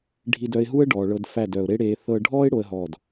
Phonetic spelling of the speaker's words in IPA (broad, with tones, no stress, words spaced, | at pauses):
ɖʱi˧dœ˧ɪ̯ɦu˦ə̯ ɖɔː˨ɭɤ˧dfæ˦˨d œ˨ʊ̯ɾe˦ɽeː˧ θɤ˦ ɖʱɔː˦ɪ̯ ɽo˦ə̯ɦɔː˦˨d